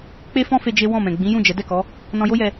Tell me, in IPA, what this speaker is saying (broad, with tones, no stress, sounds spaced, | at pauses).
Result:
k͡p e˦ f ɔ̃˦ f e˧ d͡ʒ e˦ w ɔ̃˦˨ m ɛ̃˨ ɡ͡b ĩ˨˦ j ũ˦˨ d͡ʒ ɛ˨˦ d ɛ˦˨ k ɔ˨˦ | n ɔ̃˧ j o˦ j ɛ˧